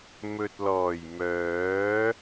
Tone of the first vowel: low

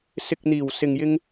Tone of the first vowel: low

